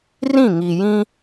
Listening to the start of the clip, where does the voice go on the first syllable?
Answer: falling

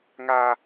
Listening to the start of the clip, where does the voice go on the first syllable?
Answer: high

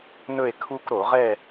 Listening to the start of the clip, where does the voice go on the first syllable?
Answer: falling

